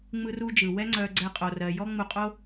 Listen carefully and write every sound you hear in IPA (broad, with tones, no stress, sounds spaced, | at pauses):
ŋ͡m ɯ˥ r u˥ d͡ʒ ɯ˩ w ɛ˥ ŋ͡ǀ œ˧ ɡ͡ǀ ɛ˧ qʼ o˩ r ɜ˩ j ɔ˥ ŋ͡m u˧ qʼ o˥